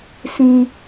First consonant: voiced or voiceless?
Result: voiceless